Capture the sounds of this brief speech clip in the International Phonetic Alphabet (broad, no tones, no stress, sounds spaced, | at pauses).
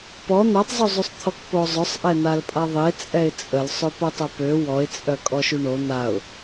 p ɔ n̪ a tˤ zˤ u zˤ y sˤ t̪ʰ ɔ k p o zˤ œ sˤ ʔ ɛ n̪ a l pʼ a ðˤ e t͡sʼ ɛ ɪ̯ t͡sʼ ə l sˤ ø p o tˤ œ p ø w ɔ ɪ̯ t͡sʼ œ kʼ ɔ ʃ y ɳ o n̪ a ʊ̯